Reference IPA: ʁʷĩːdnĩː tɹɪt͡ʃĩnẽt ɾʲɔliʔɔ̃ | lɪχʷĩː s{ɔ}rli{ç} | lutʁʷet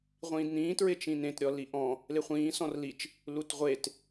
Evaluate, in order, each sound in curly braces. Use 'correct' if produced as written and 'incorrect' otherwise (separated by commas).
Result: incorrect, incorrect